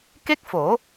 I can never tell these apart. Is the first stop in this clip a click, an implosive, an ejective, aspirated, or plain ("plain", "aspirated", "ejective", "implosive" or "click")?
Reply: plain